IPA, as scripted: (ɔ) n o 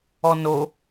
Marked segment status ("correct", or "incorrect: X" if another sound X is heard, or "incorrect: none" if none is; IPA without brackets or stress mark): correct